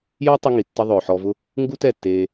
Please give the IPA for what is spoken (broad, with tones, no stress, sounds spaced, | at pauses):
j ɔ˦ tˤ ʊ˦ ŋ i˨ tː ə˦ ðˤ ʊː˨ ħ ɔ˧ v ʊ˦ | ŋ ɡ u˦ t ɛ˦˨ tː eː˧